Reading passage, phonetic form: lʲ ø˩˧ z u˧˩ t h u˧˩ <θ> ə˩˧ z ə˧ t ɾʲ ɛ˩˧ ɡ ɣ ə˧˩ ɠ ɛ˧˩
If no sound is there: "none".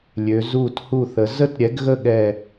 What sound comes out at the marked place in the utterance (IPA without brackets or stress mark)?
θ